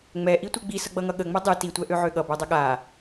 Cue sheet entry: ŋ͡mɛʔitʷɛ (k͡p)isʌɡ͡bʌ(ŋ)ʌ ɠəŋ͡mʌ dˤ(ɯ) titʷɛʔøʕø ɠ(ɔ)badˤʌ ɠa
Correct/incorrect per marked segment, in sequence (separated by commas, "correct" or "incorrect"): incorrect, correct, correct, incorrect